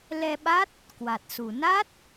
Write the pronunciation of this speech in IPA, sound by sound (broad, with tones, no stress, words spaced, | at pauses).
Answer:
lɛ˧ɓa˦˥t̚ | kwa˨˩t̚su˨˩ na˦˥t̚